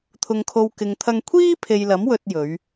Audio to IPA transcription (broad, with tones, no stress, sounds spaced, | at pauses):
t̪ʰ ʊ˨ ŋ kʰ o˨ w k ɪ˨ ŋ t̪ʰ ɐ˧ ŋ kʷʰ iː˥ pʰ e˨ j l ɐ˨˥ m w ɵ˨ t̚ j ɵ˨˧ ɥ